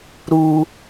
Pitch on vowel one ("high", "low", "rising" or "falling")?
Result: low